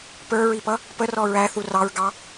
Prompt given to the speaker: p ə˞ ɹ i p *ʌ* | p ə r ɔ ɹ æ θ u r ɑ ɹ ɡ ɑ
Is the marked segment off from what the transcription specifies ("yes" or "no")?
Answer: no